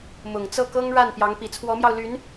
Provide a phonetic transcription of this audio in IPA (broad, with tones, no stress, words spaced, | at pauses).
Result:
mʊ˨˩ŋt͡sɤ˥˩ kɤ˥ŋɻa˥˩n pjɑ˧˥ŋ pi˨˩t͡sʰwɔ˧˥mjɑ˧ʊ̯ ly˧˥n